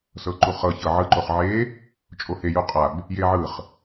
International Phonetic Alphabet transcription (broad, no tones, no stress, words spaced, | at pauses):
sɤǃuχɤ çɤʕɯ ǃoχʕe | t͡ʃʼohe juqʼab | jeʕɯχ